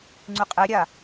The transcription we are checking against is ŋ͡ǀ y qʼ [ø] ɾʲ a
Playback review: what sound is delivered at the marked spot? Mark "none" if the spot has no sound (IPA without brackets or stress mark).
e